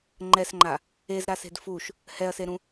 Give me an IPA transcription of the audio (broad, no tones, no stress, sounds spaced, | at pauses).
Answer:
ŋ͡ǃ ɛ s ŋ͡ǃ a | e z ɾ a s e̤ d f u ʃ | h ɛ ɐ̯ s e ɾ ũ